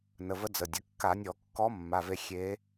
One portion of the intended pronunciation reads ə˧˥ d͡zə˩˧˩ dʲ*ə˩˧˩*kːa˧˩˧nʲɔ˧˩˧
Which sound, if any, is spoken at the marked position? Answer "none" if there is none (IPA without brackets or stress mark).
ə˩˧˩